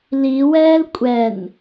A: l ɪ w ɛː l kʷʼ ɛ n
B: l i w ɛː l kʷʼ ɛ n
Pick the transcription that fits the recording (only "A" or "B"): B